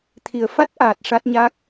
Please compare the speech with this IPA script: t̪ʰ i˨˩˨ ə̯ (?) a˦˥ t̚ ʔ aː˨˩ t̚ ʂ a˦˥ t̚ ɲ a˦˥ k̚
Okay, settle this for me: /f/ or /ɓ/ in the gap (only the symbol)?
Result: f